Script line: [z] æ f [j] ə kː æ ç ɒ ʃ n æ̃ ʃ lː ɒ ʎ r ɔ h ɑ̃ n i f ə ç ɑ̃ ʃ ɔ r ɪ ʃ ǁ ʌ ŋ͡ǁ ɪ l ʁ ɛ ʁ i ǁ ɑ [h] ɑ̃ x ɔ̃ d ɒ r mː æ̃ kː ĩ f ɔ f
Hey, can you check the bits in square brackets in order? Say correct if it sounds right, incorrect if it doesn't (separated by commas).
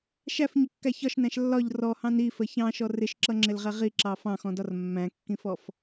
incorrect, incorrect, incorrect